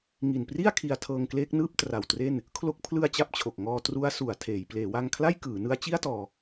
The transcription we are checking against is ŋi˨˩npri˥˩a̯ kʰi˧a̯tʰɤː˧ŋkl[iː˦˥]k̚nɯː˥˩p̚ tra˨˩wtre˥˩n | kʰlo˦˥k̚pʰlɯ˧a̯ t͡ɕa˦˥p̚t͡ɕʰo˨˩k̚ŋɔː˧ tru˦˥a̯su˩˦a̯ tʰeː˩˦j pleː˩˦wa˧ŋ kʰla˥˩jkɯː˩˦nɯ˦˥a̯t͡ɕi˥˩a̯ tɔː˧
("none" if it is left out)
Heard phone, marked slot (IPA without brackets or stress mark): eː˦˥